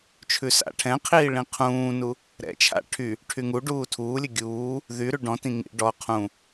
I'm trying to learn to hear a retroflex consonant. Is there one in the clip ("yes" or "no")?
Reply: yes